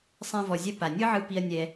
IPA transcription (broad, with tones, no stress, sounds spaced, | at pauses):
sˤ ɛ̃˧ v ɔ˨ zʲ ɛ˧ p a˨ nʲ ɯ˦ ʕ ɯ˧ p i˧ ɐ̯ nʲ ɛ˧